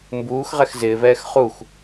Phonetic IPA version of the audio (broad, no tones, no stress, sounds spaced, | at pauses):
m b uː x ʁ ɛ x z ɪː v ɛː x χ u x